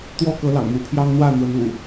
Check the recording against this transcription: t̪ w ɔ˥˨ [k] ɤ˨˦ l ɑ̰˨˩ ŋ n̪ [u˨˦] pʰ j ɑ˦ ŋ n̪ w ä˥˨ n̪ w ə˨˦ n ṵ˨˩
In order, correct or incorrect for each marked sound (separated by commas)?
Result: correct, correct